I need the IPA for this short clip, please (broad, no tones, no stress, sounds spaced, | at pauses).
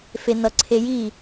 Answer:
f e n ʌ ǀʰ e j i